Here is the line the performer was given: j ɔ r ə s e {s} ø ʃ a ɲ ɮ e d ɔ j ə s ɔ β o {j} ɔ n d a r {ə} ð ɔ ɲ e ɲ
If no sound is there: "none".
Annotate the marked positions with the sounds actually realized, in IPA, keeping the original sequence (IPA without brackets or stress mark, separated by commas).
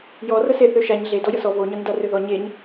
θ, ɲ, ø